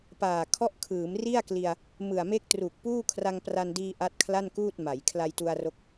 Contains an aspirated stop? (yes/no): yes